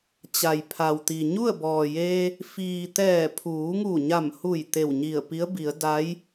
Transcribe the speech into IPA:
t͡ɕ a˩ j pʰ a˩ w t̪ i˩ ɲ u˥˨ ə̯ b ɔː˩ j eː˧ | f iː˩ t̪ ɛː˧˩ pʰ uː˩˧ ŋ u˧˩ ɲ a˧˩ m h u˧˩ j t̪ e˧˩ w ɲ i˧˩ ə̯ p i˧˥ ə̯ b i˩˧ ə̯ d a˧˥ j

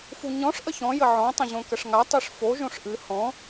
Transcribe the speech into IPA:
f u ɲ ɔ̃ ʂ ʔ ə ç ɔ̃ j ə ʕ ɔ̃ tˤ ə̃ ʑ õ k ə ʂ ŋ a tˤ ɨ ʂ f o ʒ õ ʂ ʔ ɨ h ɔ̃

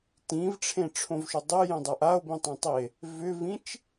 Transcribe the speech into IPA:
t ĩ v ʈ͡ʂʰ ẽ ʈ͡ʂʰ õ v ʃ ʏ dˤ e j ẽ dˤ a ʔ a o̯ b ĩ tˤ ẽ tˤ i e̯ | v ʏ v ĩ t͡ʃ

